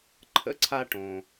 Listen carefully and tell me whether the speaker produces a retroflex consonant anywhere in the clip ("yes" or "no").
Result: yes